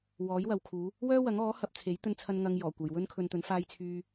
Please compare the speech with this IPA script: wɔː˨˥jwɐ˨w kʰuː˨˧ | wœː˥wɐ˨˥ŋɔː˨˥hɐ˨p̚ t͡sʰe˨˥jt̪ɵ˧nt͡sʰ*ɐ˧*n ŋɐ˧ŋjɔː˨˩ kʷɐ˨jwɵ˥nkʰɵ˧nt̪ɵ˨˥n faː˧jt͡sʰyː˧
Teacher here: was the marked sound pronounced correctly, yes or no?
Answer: yes